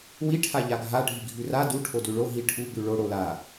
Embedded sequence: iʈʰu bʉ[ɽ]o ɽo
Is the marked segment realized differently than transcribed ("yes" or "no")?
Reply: yes